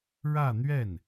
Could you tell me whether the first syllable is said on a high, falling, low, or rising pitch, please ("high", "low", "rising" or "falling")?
falling